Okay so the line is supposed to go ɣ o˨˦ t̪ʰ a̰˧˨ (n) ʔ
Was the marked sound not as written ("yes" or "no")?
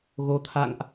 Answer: yes